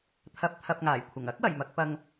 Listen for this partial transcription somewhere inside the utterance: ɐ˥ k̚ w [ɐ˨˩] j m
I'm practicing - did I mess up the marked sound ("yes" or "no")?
no